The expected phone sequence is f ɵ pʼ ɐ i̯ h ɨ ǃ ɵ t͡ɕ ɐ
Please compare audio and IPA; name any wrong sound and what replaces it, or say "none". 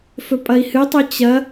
ǃ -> tˤ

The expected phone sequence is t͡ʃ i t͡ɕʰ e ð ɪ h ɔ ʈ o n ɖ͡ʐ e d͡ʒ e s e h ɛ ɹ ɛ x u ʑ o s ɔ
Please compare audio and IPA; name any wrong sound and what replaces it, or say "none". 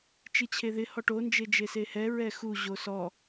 ɖ͡ʐ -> d͡ʒ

